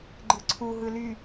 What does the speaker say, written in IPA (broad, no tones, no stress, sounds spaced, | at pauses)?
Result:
ɡ͡ǃ ɯ ǀʰ u ɦ ɯ l y